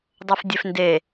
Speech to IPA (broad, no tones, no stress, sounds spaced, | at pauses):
dˤ o f dʲ e f n d e